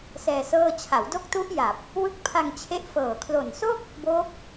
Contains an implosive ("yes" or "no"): no